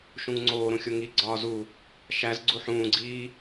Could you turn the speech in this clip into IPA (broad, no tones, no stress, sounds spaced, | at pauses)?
ʃ ũ ŋ ŋ͡ǀ oː ɾ ũ xʲ o ŋ i ɡ͡ǀ ɒː z u | ʃ æ z ɡ͡ǀ u ħ ũː ɡ͡ǀ iː